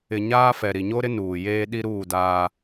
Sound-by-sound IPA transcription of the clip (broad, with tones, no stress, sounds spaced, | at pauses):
ɪ˨ ɲ aː˦ f ɛ˨ ɾ i˨ ɲ o˦ ɾ ɪ˦ n uː˨ j eː˦ ɗ i˦ ɾ uː˦˨ d aː˦